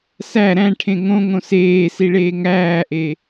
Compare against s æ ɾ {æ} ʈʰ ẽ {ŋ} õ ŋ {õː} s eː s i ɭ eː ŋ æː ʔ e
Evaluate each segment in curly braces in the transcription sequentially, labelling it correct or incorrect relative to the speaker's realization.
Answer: incorrect, correct, incorrect

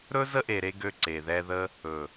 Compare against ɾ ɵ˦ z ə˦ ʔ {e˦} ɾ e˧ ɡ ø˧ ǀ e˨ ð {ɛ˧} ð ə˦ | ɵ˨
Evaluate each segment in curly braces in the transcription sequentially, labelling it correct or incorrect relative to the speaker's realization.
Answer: incorrect, correct

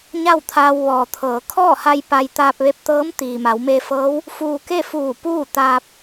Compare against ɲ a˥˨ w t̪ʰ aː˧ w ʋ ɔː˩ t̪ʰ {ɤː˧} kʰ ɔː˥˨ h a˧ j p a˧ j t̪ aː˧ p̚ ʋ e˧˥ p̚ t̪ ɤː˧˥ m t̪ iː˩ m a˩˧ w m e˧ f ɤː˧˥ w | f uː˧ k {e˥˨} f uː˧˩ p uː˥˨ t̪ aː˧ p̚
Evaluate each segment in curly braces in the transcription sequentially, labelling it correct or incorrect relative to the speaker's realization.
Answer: incorrect, correct

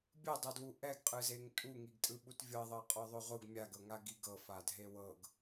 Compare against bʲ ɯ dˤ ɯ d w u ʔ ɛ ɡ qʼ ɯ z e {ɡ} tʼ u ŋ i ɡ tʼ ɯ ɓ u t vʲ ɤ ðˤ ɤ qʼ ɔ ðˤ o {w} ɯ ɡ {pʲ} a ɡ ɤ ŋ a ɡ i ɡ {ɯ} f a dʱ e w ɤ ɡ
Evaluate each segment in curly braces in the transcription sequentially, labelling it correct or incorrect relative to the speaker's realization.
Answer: incorrect, incorrect, incorrect, incorrect

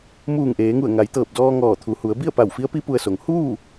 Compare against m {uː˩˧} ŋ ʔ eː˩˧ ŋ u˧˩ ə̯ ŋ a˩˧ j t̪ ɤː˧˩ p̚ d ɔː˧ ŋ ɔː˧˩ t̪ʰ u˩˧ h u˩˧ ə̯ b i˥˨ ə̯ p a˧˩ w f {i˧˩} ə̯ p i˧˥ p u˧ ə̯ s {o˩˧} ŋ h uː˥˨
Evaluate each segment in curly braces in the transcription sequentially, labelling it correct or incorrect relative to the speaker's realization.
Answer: incorrect, incorrect, correct

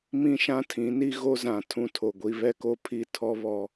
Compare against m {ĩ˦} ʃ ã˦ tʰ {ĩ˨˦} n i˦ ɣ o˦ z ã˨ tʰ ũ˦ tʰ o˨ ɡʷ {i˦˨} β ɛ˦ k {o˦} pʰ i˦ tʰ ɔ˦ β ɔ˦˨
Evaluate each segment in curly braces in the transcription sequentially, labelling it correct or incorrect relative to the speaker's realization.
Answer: correct, correct, incorrect, correct

